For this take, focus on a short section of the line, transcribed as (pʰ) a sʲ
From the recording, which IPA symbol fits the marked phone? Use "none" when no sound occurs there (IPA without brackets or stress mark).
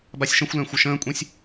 b